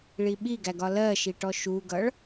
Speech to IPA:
ɭ i ɓ i ɡ æ ɡ ɒ l ɜ ʃ i ʈ ɔ ʃ u ɡ ʌ ɭ

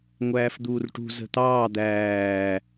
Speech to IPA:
ŋʷ æː f d̪ uː r ʈ ṳ z ə̤ t̪ ɑː d̪ æː

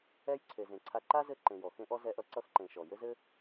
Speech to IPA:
ɛ˥ j ǀʰ e˨ z ẽ˨ ǀʰ a˦ ǃ a˥ z ɘ˦ ǃ ẽ˨ j ɔ˩ x ẽ˥ ʔ ɔ˥ z ɛ˦ ʔ ʌ˦ ǀ ʌ˥ x ǃ ẽ˨ ʃ ɔ˩ j ɘ˥ z ɘ˥

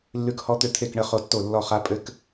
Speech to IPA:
lː ʉ˦˥ k h ɔ˦˥ t̪ ʏ˥˨ t̪ʰ e˥˨ k ɳ ə˥˨ χ o˦˥ tː o˥˨ lː ɔ˥˨ χ a˦˥ pʼ ɘ˦˥ k

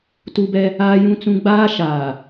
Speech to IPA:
t u˦ b ɛ˦ | aː˦ j ũ˦ t͡s ũ˦ ɡ͡b aː˦ ʃ aː˨

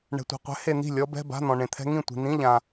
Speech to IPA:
ɳ ɛ̤˨ tʷ a̤˨ qʷ ɛ̤˨˥ h e˨ n̪ i̤˥˩ lʲ ɔ˦˥ b ɛ̤˧˥˧ b a̤˧˥˧ n̪ ɔ̃˨ ɳ ẽ˨ t̪ʰ ɛ̤˦˥ ŋ ĩ˥˩ tʷ i̤˨ n̪ ĩ˧˥˧ ʎ ã˨

